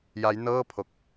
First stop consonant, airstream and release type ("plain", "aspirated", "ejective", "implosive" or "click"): aspirated